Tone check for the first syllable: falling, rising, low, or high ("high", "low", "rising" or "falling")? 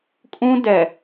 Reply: high